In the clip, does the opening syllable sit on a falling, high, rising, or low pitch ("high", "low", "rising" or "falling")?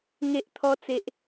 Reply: high